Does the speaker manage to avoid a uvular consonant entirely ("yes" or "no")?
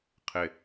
no